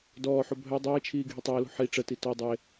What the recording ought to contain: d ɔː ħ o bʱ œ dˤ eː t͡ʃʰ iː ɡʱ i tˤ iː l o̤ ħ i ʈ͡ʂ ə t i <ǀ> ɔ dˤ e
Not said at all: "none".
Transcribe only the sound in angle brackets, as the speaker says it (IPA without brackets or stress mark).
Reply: t